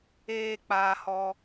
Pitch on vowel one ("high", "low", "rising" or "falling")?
high